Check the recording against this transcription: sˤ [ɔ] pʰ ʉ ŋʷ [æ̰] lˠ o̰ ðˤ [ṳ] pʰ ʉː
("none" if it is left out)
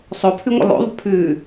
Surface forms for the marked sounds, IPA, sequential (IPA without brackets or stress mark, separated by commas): o, ə̰, ṳ